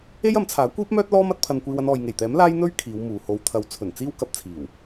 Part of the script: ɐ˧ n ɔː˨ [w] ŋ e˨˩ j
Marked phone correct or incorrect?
incorrect: j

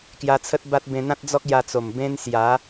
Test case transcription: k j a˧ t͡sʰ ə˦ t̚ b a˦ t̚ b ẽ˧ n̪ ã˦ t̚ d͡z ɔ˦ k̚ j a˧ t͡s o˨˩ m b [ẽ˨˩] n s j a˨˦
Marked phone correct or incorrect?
incorrect: ẽ˦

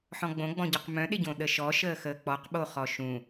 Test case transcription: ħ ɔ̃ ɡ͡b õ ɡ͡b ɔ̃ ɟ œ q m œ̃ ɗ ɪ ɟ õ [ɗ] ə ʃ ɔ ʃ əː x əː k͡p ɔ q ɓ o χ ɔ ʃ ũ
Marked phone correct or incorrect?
correct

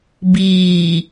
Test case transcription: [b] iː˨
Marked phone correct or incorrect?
correct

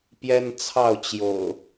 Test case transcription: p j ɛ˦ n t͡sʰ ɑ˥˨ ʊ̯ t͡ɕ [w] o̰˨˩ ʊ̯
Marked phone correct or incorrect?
incorrect: j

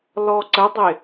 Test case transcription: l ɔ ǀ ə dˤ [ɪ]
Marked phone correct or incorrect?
correct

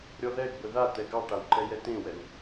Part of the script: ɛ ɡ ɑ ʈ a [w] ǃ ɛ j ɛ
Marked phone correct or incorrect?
correct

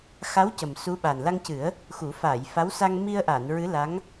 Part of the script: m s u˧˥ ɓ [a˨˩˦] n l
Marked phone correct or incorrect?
incorrect: a˨˩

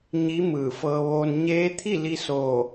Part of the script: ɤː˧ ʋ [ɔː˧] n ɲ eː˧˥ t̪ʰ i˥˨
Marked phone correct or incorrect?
incorrect: oː˧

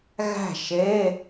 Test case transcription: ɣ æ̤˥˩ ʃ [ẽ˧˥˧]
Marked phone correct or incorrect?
incorrect: e˧˥˧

